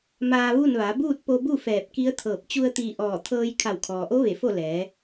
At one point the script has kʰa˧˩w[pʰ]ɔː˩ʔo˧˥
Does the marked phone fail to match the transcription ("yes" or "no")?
yes